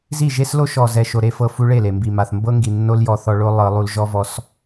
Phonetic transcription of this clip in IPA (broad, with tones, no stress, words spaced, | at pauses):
zi˦˨ʒe˦slo˦ ʃɔ˨zɛ˨ʃo˨ ɾe˧fɤ˧ fu˧ɭe˦˨le˨mbi˨ ma˨θmbɤ˦ŋɡi˨ nːo˦ljɔ˧θɔ˧ɭo˦ lˠɤ˧lˠu˧l ʒɔ˦vɔ˧s